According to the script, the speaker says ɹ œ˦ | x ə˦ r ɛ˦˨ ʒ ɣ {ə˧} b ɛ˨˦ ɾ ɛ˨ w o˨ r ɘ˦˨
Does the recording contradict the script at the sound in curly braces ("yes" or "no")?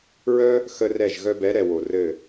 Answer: yes